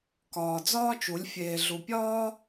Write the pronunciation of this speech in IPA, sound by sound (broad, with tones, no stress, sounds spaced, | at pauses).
k ɒː˨ d͡z ɒː˦ t͡ʃ u˨˦ lʲ fʲ eː˨ ɮ u˨ pʲ ɒː˦